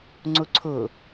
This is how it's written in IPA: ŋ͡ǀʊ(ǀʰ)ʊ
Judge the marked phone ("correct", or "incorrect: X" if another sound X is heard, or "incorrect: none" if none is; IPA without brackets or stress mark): correct